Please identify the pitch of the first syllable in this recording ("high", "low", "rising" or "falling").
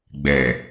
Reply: low